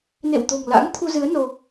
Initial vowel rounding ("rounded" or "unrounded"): unrounded